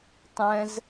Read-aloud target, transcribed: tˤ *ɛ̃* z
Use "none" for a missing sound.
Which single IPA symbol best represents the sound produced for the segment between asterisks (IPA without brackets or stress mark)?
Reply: ɛ̃